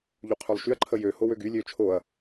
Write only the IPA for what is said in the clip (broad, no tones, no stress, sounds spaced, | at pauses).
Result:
ʎ u qʰ ø lˠ ʃ y ɐ̯ ǃʰ ə j ø h o w ø ɡ y lʲ ø t͡ʃʰ o ɐ̯